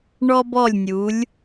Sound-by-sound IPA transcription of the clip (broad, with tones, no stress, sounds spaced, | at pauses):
ɳ ɔ˧ b ɔ˧˩ lʲ nʲ u˩˧ lʲ